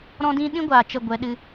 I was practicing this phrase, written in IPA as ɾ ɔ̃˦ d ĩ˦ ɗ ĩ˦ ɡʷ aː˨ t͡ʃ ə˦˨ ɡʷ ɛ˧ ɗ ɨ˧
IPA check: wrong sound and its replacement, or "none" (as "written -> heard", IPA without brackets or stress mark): none